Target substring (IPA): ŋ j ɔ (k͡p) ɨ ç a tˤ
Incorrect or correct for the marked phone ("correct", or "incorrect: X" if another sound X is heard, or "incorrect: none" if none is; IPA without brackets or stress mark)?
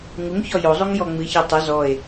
incorrect: ŋ͡m